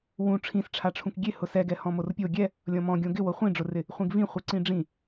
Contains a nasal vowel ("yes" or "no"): yes